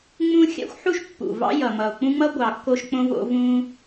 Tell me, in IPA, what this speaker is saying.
ŋ͡m ũ˦ xʲ a̰˦ xʷ ħ u˦ ʃ pː ṵ˨ v ɑ̰˦ j ʌ˨ m ʌ˨ o̯ k͡p ũ˦ ŋ͡m ʌ˦ ɡʷ ɑ˨ kː o˧ ʃ k͡p õ˦ v o̰˧ v ũ˧

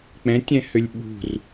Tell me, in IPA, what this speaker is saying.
k͡p ɛ̃ tʲ ɛ̃ h ø lʲ ɓ ṳ r

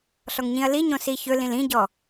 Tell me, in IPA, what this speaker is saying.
ɬ ɔ ŋ ɲ ĩ ɐ̯ l i ɲ õ s i ç ɵ l ĩ l ĩ ɟ ɔ

